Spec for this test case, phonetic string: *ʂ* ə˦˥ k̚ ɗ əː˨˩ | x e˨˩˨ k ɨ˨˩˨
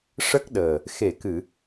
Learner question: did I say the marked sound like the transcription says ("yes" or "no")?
yes